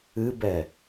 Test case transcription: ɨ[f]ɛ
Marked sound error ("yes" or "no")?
yes